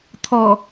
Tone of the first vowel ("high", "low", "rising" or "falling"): low